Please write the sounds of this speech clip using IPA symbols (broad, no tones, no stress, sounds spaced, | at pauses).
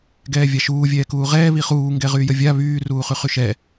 ɡ ɛː vʲ a ʃ uː vʲ ɛː k uː ʁ ɛː β i χ uː ŋ ɡ ɛ ʁ yː j ə vʲ a β yː r uː χ y χ y ʃ ɛ